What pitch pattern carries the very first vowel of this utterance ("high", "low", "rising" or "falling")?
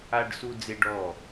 high